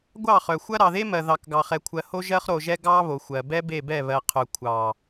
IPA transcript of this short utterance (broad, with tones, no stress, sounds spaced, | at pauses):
ɡʷ ɑ˦˨ χ œ˨ xʷ ɐ˦ ɾ ɑ˨ ð e˦ m ɜ˨ ð ɑ˨ k ɡ ɑ˨ χ ɛ˨ kʷʰ ɜ˨ h o˦ ʒ ɜ˦ χ ɾ o˨ ʒ ɛ˦ ɡ ɑ˦ β o˨ xʷ ɜ˨ b ɛ˦ b e˦˨ b ɛ˦˨ β ɜ˨ qʰ œ˨ kʷʰ ɑ˨